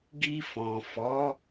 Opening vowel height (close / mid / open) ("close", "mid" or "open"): close